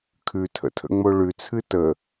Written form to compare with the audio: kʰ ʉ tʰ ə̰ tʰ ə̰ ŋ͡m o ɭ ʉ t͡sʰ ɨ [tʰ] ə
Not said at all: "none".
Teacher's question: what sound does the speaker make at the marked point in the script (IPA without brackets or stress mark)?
t